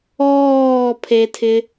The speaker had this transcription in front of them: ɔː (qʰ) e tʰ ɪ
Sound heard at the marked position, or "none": pʰ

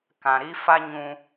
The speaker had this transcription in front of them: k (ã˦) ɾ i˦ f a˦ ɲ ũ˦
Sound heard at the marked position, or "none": ã˨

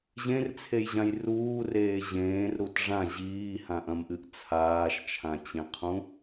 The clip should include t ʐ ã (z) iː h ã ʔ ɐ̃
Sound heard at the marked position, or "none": ʑ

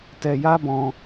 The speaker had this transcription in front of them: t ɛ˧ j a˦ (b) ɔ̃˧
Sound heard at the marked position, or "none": b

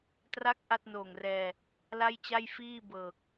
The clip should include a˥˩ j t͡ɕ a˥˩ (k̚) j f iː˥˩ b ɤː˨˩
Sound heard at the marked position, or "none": none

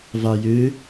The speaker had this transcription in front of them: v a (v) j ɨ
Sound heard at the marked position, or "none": none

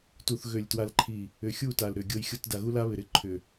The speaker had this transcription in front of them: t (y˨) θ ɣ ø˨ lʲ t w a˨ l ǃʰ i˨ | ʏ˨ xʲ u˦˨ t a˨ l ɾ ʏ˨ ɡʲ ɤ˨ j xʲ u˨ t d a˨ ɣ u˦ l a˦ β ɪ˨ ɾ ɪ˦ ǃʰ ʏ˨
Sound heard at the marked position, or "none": u˨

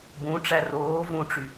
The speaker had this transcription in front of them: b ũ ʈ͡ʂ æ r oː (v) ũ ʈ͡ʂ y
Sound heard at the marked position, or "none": v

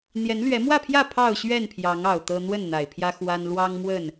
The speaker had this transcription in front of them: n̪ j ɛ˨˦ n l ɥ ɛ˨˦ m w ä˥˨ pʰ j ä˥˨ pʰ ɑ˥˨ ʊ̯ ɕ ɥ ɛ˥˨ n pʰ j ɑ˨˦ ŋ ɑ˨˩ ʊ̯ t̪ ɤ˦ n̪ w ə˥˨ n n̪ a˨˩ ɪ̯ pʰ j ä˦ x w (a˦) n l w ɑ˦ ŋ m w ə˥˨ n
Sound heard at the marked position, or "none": a˦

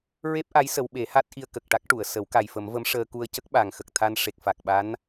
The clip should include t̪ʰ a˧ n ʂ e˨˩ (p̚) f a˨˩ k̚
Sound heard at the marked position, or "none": k̚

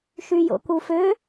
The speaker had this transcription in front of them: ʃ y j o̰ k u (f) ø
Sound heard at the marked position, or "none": f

